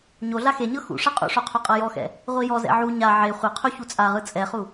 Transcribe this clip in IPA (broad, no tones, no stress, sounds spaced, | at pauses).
ɲ o ɮ a x e ɲ ɤ x ṵ ʂ ɤ qʼ ṵ ʂ o qʰ u qʼ ɤ j ɔ x ɛ̰ | ʁʷ i j ɔ z ɛ̰ ʕ u ɲ a ʕ e χʷ ɤ qʰ u ç u t͡sʼ a ʁ ɯ t͡sʼ ɛ χ u